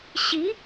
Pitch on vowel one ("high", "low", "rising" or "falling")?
rising